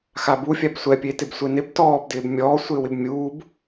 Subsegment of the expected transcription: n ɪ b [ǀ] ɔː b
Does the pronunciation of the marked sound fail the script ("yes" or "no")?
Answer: yes